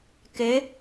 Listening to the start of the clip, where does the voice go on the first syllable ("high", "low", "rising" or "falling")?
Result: rising